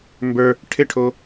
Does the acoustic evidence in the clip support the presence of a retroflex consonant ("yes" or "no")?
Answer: yes